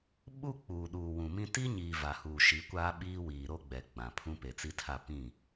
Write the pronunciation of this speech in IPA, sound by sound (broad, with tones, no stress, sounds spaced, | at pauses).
ɓ u˦ k͡p uː˨ ɗ uː˨ w ũ˨ m ĩ˦ t i˦ ɲ iː˨ v a˨ h uː˨ ʃ i˨˦ kʷ aː˦ ɓ iː˦ w iː˨ ɾ o˦ ɡ͡b ɛ˨ ɡ͡b ã˨ pʰ ũ˦ p e˨ t͡s i˦ tʰ a˦˨ p ĩ˦˨